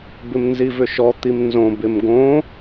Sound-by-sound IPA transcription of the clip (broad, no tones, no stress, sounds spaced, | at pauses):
b ɪ m n z i v ʏ ʃ ɔ t̪ i m n z õ b ɪ m ɡ õ